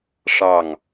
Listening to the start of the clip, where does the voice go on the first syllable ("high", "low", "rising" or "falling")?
falling